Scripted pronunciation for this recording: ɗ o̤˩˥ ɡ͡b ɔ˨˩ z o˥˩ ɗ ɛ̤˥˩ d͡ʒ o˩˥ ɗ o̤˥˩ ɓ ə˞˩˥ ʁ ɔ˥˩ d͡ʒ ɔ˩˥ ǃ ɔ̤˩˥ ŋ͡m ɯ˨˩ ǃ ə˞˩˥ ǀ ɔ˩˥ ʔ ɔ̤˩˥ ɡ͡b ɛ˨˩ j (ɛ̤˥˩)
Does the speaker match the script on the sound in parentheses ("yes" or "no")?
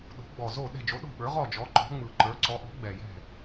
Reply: yes